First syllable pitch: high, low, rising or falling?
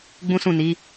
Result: high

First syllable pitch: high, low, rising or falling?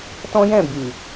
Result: high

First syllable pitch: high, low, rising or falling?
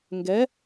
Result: rising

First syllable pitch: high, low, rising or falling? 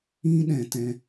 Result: high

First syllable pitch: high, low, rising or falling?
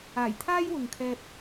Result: low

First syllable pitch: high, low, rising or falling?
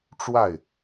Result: falling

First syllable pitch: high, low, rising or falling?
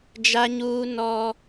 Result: high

